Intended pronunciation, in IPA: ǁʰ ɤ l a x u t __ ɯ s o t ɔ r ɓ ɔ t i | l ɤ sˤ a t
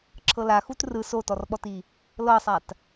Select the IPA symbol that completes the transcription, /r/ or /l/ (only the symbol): r